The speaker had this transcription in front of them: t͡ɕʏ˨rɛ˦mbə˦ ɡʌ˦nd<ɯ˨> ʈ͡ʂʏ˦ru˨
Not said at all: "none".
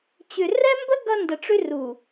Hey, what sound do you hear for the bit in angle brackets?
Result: ə˨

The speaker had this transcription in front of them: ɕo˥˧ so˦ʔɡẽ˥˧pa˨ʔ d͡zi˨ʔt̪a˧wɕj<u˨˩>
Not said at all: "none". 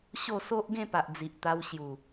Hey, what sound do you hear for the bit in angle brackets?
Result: u˨˩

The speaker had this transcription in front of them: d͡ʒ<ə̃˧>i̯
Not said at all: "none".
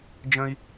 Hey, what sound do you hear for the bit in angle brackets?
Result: ə̃˧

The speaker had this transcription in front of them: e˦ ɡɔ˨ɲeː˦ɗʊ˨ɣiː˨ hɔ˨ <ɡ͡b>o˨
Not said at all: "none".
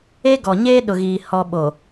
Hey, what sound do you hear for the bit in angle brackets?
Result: ɓ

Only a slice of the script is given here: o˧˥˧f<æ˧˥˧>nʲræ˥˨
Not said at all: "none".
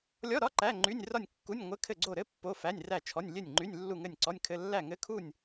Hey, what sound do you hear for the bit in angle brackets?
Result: æ˧˥˧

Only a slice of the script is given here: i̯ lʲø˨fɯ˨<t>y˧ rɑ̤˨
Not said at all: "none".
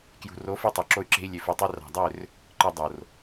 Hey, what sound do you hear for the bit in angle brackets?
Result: tˤ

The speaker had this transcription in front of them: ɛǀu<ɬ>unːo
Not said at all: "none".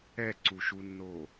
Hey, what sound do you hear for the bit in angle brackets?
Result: ʃ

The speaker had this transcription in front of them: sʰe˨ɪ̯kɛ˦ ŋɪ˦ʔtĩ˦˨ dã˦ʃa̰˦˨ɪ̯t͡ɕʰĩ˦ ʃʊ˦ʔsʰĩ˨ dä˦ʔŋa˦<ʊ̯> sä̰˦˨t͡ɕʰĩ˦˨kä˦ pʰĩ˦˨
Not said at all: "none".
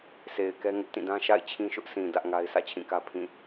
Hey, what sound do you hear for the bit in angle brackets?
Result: ɪ̯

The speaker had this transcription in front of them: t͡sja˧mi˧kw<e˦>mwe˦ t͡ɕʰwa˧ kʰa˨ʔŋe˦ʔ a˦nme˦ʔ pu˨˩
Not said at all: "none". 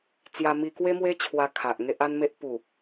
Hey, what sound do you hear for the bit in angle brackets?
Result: e˦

